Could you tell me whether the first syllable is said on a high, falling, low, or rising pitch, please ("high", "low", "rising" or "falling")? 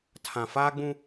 low